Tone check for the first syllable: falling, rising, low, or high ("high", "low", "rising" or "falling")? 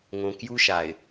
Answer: low